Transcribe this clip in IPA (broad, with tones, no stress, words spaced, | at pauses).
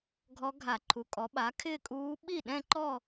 ɡʱɔ˧˥ɡʱa˧˩˧ǃʰu˩˥kʼɔ˩˥ ɓa˩˥ kʰɪː˥˧kʼuː˧˥ ɓi˥˩ɗɛ̃˥˧ǃɔ˥˧